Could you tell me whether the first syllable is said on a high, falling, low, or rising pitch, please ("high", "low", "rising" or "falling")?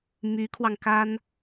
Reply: rising